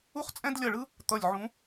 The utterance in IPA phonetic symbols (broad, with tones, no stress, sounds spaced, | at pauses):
u˥ χ t͡sʼ ɛ̃˥ d lʲ ʌ˦˨ ɭ ɯ˥ | t̪ ʌ˦˨ lʲ ʕ ũ˧˥